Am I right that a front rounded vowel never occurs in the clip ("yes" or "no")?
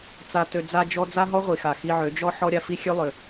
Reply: no